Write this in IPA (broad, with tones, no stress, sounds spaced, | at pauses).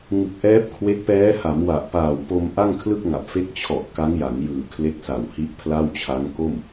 ŋ ɯ˨˩ k̚ ʔ ɛː˦˥ p̚ kʰ w e˦˥ k̚ p ɛː˦˥ h a˩˦ m w a˨˩ ʔ p aː˨˩ w p o˧ m ʔ a˥˩ ŋ kʰ l ɯ˥˩ k̚ ŋ a˨˩ p̚ f e˦˥ k̚ t͡ɕʰ ɔ˨˩ ʔ k a˦˥ ŋ j a˩˦ ŋ j ɯː˨˩ kʰ l e˦˥ k̚ s a˨˩ w h i˦˥ ʔ pʰ l a˥˩ w t͡ɕʰ a˦˥ ŋ k o˥˩ m